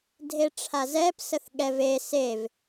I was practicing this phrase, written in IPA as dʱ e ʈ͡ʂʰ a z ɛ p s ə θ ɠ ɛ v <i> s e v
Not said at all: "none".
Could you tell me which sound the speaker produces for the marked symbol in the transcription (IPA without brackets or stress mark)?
e